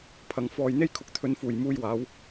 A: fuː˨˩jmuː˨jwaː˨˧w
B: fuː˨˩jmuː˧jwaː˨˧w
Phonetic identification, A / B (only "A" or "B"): B